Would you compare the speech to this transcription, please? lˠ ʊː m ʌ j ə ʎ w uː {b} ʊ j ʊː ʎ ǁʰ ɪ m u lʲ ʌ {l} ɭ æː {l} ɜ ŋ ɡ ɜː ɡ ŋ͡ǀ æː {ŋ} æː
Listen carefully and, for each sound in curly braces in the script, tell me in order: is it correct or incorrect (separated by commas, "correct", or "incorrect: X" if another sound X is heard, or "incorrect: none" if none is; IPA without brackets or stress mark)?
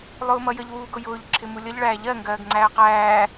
incorrect: ɡ, incorrect: ʎ, incorrect: ʎ, incorrect: q